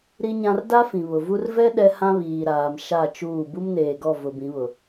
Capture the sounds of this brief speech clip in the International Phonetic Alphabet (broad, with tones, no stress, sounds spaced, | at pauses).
ɾ i˦ ɲ ã˦ r d a˦ f ĩ˨ β ʊ˨ v u˦ r v ɛ˦ ɗ ɛ˦ h ã˦ β iː˨ ɾ aː˨ m ʃ a˦˨ t͡ʃ uː˦˨ b u˦ m n eː˨ ɡ ɔ˦˨ v ʊ˨ b ĩ˨˦ β ʊ˨